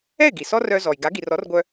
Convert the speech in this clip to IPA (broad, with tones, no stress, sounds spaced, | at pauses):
ɛ˥˩ ɪ̯ ɡ i˩ s ɔ˥ r œ˧ z ɔ˩ j ɡ a˩˥ ɡ i˩ r ɔ˩˥ r ɡʷ œ˧